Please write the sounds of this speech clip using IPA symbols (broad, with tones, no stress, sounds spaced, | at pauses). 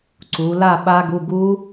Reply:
ǀ u˩˧ l a˥˨ ɓ a˦˥ ɡ u˧˥˧ ɡ u˦˥